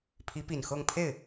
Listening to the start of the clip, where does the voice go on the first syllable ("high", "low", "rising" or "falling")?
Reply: rising